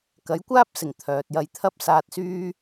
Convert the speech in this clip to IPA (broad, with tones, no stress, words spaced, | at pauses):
kɐ˨˥jkʷaː˥p̚sɪ˨˩ŋ t̪ʰœː˨t̚jɐ˧j t̪ʰɐ˥p̚saː˧t̚syː˥